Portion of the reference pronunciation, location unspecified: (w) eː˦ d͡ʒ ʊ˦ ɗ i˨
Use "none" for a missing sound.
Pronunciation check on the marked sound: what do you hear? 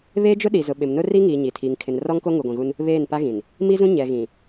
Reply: β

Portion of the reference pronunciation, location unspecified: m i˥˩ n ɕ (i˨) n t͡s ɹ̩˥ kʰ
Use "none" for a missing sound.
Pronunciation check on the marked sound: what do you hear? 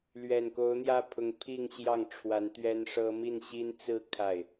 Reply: i˥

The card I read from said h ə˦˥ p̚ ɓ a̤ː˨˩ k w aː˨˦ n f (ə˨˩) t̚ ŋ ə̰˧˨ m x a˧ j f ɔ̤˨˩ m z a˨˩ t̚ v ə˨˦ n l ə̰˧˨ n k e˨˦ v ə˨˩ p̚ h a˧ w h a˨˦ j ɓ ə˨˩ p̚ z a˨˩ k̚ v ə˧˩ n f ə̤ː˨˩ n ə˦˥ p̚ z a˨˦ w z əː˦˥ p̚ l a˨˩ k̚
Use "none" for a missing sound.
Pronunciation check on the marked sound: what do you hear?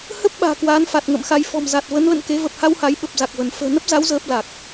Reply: a˨˩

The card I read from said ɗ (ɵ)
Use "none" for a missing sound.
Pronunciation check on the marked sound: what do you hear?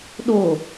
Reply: o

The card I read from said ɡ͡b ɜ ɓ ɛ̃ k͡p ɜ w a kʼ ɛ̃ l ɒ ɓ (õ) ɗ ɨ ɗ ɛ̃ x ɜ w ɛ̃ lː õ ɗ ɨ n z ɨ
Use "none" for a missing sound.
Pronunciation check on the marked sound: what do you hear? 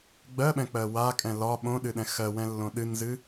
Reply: õ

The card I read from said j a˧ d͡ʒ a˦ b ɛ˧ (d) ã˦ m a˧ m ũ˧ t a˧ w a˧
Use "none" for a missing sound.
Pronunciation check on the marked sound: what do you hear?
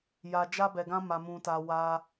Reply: ɡ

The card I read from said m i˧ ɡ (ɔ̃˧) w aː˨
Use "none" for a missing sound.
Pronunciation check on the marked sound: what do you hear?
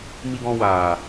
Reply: ɔ̃˧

